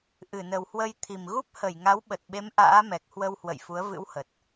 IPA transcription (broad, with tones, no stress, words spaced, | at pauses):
ʔɨ˧˩nə˨˩whwə˧jt̪ʰi˨˩m ɣu˦˥p̚hə˧˩j ŋa˨˦wɓə˨˩t̚ɓe˨˦m ʔa̰ː˧˥mɛ˨˩k̚hwə˧whwə̰˧˨j fu˨˦ə̯vɨ̰˧˥whə˨˩t̚